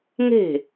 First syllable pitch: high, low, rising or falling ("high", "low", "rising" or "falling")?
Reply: falling